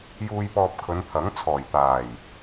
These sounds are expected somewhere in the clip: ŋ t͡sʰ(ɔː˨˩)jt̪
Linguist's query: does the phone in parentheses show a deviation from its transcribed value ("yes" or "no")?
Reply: no